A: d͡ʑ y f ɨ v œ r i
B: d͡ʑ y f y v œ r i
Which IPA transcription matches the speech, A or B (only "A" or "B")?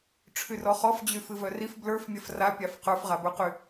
A